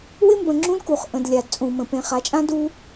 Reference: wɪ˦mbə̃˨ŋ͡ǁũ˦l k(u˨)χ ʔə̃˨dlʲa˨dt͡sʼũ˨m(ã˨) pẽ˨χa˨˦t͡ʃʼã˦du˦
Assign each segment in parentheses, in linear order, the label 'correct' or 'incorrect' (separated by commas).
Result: correct, incorrect